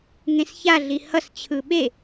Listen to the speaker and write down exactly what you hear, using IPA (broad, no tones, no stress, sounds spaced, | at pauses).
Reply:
ŋ ẽ s ç a ɮ i h ʌ s t͡ɕʰ ɯ ɓ e